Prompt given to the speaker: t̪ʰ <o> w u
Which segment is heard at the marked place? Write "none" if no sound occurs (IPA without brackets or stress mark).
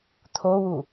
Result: o